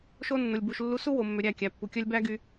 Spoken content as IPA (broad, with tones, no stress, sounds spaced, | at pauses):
ʃ o˦ nː o˨ lʲ b u˧ ʃ lː u˧ s u˦ w o˨ mː ø˨ ɾʲ æ˦˨ kʲ æ˨ pː u˨ kʲ œ˦ lʲ b æ˦ ɡ y˧